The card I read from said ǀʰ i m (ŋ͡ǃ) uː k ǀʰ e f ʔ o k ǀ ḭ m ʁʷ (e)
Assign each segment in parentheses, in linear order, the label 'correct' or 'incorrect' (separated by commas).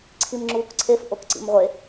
incorrect, correct